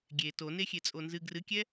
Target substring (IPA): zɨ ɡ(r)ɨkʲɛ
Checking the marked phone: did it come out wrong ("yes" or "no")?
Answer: no